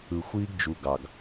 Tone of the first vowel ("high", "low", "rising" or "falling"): low